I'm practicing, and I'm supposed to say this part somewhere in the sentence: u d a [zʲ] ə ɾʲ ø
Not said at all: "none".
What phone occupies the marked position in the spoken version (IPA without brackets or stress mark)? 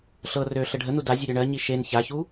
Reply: zʲ